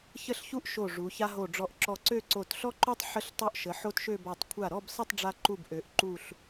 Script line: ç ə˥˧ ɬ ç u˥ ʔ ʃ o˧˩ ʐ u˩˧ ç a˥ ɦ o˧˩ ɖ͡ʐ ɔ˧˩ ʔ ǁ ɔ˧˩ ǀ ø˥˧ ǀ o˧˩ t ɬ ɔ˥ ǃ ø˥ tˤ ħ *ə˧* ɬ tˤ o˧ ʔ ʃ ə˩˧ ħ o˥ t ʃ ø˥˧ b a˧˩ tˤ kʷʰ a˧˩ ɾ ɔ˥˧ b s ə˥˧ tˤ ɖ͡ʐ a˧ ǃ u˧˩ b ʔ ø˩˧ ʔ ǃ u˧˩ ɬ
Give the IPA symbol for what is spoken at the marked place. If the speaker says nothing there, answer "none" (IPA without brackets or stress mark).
ə˥